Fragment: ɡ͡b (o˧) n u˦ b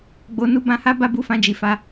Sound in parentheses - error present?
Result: no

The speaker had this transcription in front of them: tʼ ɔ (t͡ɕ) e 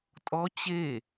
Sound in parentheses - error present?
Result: no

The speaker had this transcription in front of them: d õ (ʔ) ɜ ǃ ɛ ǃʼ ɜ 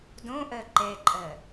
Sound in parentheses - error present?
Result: no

